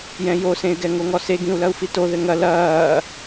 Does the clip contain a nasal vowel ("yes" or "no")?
yes